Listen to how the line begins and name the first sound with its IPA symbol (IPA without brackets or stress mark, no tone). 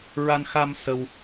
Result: ɹ